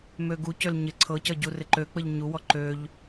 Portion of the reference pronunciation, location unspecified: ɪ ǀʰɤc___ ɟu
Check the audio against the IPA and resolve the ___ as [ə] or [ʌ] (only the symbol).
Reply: ʌ